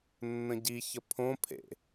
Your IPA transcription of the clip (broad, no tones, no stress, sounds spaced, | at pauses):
nː ə̃ ɟ i ç ə pʰ õ pʰ ḛ